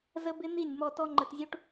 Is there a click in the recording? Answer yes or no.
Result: yes